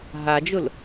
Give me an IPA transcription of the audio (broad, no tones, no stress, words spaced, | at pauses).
ɦad͡ʒʊl